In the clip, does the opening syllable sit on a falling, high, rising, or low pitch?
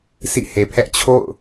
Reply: falling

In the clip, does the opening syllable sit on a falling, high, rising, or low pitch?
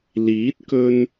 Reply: rising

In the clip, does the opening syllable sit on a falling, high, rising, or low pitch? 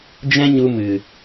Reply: high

